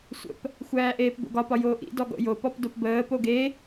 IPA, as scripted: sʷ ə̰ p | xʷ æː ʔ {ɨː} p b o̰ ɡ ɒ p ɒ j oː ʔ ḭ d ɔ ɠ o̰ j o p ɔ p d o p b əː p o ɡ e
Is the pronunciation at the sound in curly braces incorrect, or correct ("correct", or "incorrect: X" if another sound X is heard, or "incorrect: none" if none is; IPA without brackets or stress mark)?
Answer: incorrect: eː